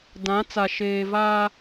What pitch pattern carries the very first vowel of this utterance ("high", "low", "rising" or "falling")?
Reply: rising